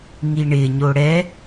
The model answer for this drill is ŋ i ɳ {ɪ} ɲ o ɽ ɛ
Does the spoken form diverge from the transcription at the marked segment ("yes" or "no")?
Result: no